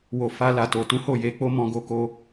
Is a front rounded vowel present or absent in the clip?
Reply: absent